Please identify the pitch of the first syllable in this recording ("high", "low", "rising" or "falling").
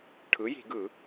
rising